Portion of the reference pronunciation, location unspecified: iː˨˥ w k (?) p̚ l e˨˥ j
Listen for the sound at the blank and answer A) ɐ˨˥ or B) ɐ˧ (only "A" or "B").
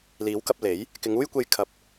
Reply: B